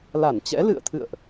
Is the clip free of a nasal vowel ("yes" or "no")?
yes